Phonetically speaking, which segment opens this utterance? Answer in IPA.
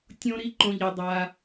tʲ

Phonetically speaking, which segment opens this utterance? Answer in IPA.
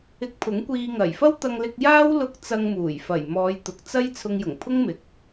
ɪ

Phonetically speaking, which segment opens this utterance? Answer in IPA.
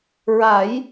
ɹ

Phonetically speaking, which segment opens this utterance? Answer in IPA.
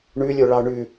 ɳ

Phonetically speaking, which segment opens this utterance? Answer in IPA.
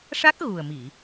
ʂ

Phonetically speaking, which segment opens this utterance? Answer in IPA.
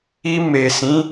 i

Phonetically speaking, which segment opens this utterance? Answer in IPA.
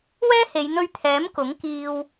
w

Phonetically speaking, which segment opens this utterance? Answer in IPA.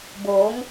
b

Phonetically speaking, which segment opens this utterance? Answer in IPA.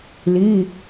l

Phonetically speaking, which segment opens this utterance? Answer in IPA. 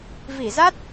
v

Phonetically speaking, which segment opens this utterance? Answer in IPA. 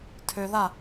tʰ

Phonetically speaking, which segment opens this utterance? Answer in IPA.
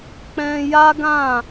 k͡p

